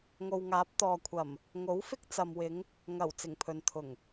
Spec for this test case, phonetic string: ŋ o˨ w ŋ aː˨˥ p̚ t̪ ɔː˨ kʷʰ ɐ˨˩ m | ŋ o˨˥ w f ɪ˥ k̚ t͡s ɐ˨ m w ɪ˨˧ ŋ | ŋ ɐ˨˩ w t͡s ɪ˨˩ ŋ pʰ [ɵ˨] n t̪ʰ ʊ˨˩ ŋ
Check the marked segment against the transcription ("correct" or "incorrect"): correct